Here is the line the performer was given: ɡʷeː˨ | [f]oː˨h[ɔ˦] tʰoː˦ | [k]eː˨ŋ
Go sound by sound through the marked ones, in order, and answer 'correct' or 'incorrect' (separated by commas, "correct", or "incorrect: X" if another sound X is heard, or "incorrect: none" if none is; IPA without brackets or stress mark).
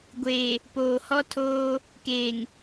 incorrect: p, correct, correct